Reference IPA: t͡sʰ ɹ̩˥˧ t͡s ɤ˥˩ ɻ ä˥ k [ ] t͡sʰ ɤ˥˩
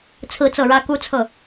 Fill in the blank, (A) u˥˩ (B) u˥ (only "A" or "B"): B